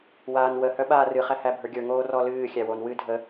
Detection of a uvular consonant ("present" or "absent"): present